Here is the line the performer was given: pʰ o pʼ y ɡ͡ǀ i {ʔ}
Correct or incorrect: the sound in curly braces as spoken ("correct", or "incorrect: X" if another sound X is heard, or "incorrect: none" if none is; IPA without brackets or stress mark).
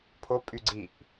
correct